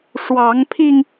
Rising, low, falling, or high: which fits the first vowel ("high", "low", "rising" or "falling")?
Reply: rising